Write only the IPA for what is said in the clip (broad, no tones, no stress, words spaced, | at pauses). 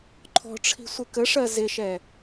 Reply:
ǃʰɔ̤ʈ͡ʂʰi̤sʷɪ kəʂɜ zɪʃɛ